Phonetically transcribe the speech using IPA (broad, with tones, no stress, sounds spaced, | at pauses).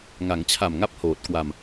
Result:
ŋ a˩˦ ŋ t͡ɕʰ a˨˩ m ŋ a˦˥ p̚ h oː˨˩ t̚ k w a˧ m